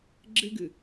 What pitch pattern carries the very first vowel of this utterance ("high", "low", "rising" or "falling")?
high